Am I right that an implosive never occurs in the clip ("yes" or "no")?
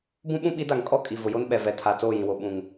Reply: no